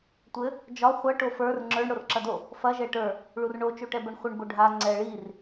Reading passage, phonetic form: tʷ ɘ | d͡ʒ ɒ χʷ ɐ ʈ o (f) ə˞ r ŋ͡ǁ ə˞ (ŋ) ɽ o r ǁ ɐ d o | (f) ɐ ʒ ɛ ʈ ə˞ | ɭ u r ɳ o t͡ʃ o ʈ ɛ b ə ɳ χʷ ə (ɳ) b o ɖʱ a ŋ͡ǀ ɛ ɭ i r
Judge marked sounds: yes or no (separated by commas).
yes, no, yes, yes